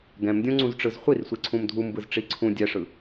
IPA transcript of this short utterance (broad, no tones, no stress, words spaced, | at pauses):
ɡɛ̃mdʲõŋ͡ǀũzʈ͡ʂɯz χʷirsʷiǀʰũm dʱumbɯzʈ͡ʂi ǀʰũ dʲɛʂɯ